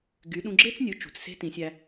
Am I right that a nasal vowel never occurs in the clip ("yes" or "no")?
no